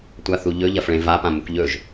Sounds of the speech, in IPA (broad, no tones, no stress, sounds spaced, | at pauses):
tʷ a θ u ʎ ɵ ʎ ɐ f ɭ ẽ v a p ã m u k ʎ ɵ ʒ